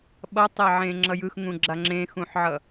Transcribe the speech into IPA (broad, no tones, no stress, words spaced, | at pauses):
ɓʌtˤɛʕẽ ŋ͡ǁʌjɯxŋũɡ͡ǁa ŋ͡ǁẽxũħʕʌ